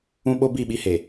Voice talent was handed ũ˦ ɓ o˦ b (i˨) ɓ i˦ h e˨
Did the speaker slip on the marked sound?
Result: yes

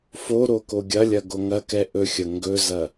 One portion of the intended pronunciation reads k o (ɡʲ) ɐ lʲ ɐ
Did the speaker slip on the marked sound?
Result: no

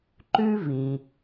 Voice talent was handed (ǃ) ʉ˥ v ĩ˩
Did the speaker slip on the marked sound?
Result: no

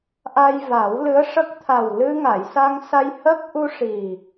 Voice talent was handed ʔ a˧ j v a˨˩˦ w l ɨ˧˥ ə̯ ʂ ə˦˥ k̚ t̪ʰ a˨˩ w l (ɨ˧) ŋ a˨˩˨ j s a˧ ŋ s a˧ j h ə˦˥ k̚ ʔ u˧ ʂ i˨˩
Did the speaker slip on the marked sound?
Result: no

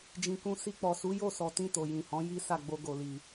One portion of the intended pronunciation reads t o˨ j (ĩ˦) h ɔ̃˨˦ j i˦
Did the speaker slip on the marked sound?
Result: yes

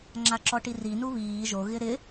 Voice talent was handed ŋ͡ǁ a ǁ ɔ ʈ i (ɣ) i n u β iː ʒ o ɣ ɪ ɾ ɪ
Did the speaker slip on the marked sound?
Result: yes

